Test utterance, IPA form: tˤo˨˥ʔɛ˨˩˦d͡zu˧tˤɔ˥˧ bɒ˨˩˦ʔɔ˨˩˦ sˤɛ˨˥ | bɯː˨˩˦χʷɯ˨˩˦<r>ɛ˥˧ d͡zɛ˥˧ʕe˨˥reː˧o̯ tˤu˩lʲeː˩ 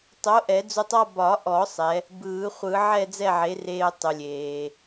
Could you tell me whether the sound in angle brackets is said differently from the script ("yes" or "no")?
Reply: yes